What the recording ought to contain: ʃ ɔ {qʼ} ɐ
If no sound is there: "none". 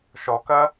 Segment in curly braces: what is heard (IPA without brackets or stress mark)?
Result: k